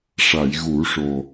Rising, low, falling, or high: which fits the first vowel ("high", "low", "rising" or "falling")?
low